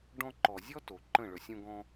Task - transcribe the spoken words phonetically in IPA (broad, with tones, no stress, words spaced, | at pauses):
ɖɔ̃˧ǃɔ˨zʲɔ˦ to˨ ǃə̃˦˨ ɭɵ˨sʲõ˧ɡɔ̃˧